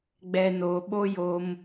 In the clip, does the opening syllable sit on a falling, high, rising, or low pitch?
low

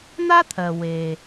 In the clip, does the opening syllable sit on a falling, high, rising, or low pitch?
high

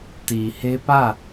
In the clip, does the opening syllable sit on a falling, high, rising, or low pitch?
low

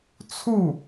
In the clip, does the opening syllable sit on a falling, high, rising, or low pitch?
falling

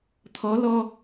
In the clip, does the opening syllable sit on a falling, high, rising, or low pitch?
rising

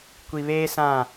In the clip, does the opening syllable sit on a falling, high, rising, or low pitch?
low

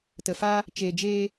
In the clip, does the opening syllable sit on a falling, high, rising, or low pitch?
low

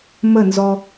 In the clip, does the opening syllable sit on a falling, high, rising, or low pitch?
falling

